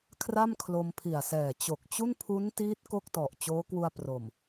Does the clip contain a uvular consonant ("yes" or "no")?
no